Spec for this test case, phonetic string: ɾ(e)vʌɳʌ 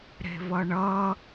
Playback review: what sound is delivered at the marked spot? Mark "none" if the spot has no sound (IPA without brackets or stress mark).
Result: e̤